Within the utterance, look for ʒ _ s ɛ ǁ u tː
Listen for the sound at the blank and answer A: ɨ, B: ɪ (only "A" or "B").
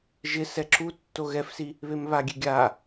B